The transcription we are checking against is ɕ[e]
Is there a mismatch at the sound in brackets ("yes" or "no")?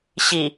yes